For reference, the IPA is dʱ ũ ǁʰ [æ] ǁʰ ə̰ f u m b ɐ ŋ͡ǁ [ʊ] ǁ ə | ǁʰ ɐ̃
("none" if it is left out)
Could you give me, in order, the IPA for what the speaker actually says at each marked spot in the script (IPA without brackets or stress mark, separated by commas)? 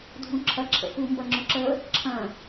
ɐ, ʊ